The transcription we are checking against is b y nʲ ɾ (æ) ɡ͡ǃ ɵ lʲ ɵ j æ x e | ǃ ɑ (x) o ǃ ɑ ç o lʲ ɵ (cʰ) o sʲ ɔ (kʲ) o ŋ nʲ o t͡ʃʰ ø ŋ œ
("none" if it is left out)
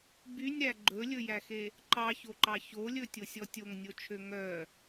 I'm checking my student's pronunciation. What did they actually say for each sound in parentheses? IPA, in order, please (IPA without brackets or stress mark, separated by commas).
æ, ç, tʲ, tʲ